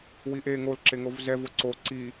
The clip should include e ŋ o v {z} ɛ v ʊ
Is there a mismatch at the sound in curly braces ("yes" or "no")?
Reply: no